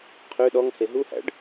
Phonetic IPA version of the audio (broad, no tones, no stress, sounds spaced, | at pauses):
qʰ ø ɗ ɔ ŋ h e ɦ u h æ̰ ɖ